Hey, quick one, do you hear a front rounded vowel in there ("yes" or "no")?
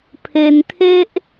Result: no